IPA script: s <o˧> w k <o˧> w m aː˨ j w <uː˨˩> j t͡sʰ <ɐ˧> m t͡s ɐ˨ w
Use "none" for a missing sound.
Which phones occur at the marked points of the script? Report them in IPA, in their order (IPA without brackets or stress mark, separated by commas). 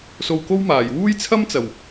o˧, o˥, uː˥, ɐ˥